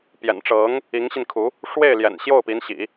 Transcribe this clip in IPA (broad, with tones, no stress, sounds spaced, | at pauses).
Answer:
p j ɛ̰˨˩ n ʈ͡ʂ ɤ˧˥ ŋ | i˧˥ ŋ ɕ i˧ n kʰ u˧˥ | ʂ w e˥˩ ɪ̯ l j ɛ̰˨˩ n ɕ j o˥˩ ʊ̯ p i˧˥ n ɕ ḭ˨˩˦